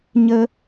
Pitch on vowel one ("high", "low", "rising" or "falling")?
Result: high